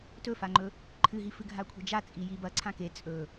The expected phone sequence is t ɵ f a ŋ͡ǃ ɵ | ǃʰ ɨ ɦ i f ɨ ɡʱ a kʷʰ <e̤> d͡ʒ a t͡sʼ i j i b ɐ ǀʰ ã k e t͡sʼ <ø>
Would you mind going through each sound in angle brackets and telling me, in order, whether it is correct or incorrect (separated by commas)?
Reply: correct, incorrect